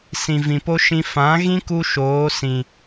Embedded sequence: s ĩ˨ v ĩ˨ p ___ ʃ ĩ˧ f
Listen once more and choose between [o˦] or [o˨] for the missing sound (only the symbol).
o˦